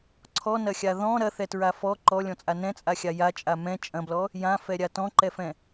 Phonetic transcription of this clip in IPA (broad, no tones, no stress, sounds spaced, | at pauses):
ǀʰ ɔ n ɐ xʲ a ð ɔ̃ ɾ ɐ θ ɛ t ɹ a f ɔ ǃ ɔ lʲ ɔ̃ t͡sʼ a n ɛ̃ t͡sʼ a xʲ a j a t͡ʃʼ a m ɛ̃ t͡ʃʼ ɐ̃ b l ɔ | j ã f ɛ ɾʲ a t ɔ̃ ǃ ɛ f ɛ̃